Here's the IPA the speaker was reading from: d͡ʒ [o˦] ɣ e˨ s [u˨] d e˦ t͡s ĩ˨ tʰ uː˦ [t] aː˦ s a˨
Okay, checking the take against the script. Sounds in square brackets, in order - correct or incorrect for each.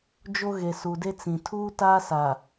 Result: correct, correct, correct

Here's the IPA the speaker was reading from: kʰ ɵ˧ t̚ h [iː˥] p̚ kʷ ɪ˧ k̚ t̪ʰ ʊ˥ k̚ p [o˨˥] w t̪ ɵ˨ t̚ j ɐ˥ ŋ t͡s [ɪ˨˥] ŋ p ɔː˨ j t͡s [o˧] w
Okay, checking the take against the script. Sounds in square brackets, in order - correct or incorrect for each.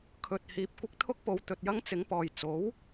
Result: incorrect, incorrect, correct, incorrect

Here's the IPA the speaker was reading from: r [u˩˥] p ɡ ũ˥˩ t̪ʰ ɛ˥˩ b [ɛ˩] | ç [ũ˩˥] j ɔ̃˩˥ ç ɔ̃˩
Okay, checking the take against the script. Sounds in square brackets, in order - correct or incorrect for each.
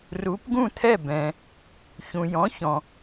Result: correct, incorrect, incorrect

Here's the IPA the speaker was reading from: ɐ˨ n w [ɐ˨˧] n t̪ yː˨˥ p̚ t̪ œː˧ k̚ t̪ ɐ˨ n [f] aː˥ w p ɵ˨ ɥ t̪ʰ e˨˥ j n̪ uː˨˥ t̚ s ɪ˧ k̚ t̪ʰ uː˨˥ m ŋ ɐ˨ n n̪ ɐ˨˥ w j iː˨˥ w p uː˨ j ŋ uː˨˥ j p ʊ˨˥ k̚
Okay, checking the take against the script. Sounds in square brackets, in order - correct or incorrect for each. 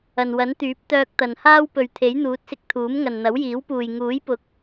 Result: incorrect, incorrect

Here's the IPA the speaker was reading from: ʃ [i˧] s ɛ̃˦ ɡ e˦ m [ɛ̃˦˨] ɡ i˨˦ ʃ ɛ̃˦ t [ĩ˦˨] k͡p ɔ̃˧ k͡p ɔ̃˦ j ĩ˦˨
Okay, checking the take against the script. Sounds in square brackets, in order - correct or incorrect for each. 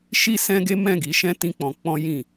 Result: incorrect, correct, incorrect

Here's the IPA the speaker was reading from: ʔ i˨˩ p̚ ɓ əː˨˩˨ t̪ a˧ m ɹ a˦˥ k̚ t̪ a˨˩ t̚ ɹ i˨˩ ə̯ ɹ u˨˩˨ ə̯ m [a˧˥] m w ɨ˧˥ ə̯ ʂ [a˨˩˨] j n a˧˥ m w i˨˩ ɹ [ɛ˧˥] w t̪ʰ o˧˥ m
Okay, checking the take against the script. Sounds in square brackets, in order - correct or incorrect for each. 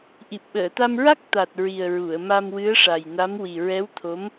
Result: incorrect, incorrect, correct

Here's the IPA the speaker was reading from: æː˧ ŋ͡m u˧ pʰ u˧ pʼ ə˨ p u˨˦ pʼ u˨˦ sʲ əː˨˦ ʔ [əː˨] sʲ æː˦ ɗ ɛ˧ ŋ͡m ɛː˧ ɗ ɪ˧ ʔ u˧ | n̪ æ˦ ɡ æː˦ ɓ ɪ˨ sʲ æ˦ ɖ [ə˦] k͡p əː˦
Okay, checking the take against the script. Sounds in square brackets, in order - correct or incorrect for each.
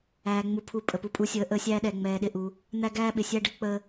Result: incorrect, correct

